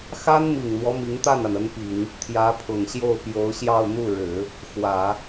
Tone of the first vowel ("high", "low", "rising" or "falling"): high